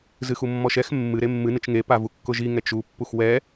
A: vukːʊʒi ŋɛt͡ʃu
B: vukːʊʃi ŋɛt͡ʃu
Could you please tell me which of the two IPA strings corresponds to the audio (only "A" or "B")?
A